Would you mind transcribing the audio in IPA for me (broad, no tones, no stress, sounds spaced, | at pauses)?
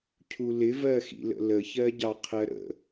cʰ u l ɪ v ɜ x ḭ l ə̰ l ə ç ɜ ɟ ɑ qʰ ɜ ɾ ə̰